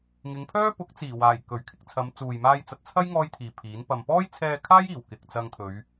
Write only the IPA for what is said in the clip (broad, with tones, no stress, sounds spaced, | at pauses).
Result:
ŋ ɪ˨˧ ŋ pʰ œː˥ p ʊ˨˥ k̚ t͡s iː˨˩ w aː˨˩ j k ɵ˨˩ ɥ kʰ ɪ˧ k̚ t͡sʰ ɐ˨˧ m t͡s uː˨ j m aː˧ j t͡s ɐ˨ t̚ t͡sʰ ɐ˥ j ŋ ɔː˥ j t̪ʰ iː˨ pʰ iː˨˥ n p ɐ˧ m p ɔː˥ j t͡sʰ ɛː˧ kʰ aː˥ j iː˨˩ w k ɪ˨ k̚ t͡s ɐ˧ ŋ t̪ʰ ɵ˨˧ ɥ